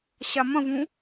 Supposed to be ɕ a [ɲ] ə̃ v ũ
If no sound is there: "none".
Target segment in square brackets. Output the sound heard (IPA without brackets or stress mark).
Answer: m